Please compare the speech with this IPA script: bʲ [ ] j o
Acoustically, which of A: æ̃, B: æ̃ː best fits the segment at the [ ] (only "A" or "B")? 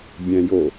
A